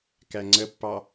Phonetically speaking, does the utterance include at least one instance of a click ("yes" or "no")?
yes